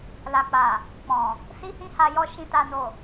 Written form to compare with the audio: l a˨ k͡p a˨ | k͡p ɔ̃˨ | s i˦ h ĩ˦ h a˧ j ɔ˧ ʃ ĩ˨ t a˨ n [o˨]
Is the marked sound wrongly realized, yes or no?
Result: no